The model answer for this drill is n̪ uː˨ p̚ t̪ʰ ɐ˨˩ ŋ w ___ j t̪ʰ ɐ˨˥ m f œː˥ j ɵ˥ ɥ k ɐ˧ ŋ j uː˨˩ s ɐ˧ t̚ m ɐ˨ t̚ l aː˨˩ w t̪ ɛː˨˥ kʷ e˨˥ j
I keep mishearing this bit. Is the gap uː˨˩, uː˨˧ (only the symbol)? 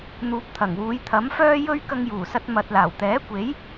uː˨˧